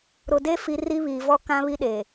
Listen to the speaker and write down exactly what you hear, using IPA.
ɾ ʊ˨ d e˦ f i˨ r i˦ β iː˨ v ɔ˦ k ã˦ β i˦ ɗ e˨

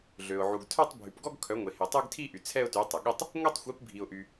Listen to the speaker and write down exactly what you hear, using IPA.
ɮ ø˩ ʊ̯ ʕ u˩ ɡ tʰ œ˥˧ tˤ bʱ y˩ p ɡ ɔ˥˧ ɡ kʰ œ˩˥ ŋʷ e˩ h e˩ tˤ ø˥˧ ɡ tʰ i˥˧ ʔ y˩ t͡sʰ ɛ˥˧ ʊ̯ t y˩˥ tˤ ə˩ ɠ i˥˧ tˤ | ŋʷ ɛ˥˧ tˤ xʷ i˩˥ p bʱ i˩ ʊ̯ ʔ y˩

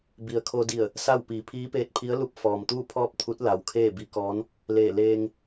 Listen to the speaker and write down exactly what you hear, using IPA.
b i˩ ə̯ kʰ o˧ d i˧˩ ə̯ | s a˥˨ w p iː˩˧ pʰ iː˧˥ p eː˧˥ t̚ pʰ i˧˥ ə̯ l u˧˥ p̚ f ɔː˩ m t̪ uː˥˨ pʰ ɔː˥˨ p̚ t̪ʰ u˧˥ t̚ l a˩ w kʰ eː˥˨ b i˧˥ k ɔː˧˥ n | l eː˧˩ l eː˧ ŋ

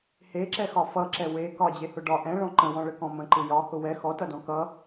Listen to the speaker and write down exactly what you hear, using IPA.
h e ǁ ɛ x ɒ f ʌ ǁ ɛ w e k ɒ d͡ʑ e h ʊ ɖ ɒ ʔ ɛ̃ ɭ ɔ̃ ǃ ə̃ w ɔ̃ ɭ ə k ɔ̃ m ə̃ ǃ ɯ j ɒ h ʊ w ɛ x ɔ t ʌ d ɔ̃ k ʌ

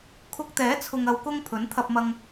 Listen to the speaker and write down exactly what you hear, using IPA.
kʰ ʊ˧ k̚ t̪ ɛː˨˥ t͡sʰ ʊ˨ ŋ ɐ˨ w k ʊ˧ ŋ pʰ ɵ˨˥ n t̪ʰ ɐ˧ p̚ m ɐ˧ ŋ

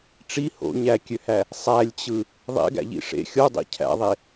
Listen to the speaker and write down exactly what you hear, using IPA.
ʈ͡ʂ i h o̰ ɲ æ kʲ ø h æ | sˤ æ lʲ t͡ɕ ɯ | ðˤ ḛ ɡ æ̰ ʎ ḭ ʂ ḛ xʲ o dˤ ḭ cʰ æ̰ ðˤ e

